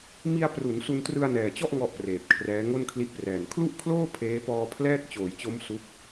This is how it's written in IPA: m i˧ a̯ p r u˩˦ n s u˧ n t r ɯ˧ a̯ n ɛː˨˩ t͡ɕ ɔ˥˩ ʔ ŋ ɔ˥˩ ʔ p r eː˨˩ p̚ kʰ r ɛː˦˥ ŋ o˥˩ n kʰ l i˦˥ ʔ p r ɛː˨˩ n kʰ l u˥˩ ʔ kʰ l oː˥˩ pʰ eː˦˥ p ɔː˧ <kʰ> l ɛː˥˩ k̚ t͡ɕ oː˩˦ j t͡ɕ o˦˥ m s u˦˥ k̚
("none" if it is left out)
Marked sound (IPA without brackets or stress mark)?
pʰ